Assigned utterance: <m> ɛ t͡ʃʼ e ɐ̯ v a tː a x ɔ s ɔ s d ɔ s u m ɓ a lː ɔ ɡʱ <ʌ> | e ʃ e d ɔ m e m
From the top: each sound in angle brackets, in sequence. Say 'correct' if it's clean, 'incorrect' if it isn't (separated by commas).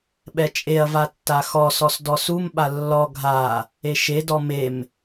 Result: incorrect, incorrect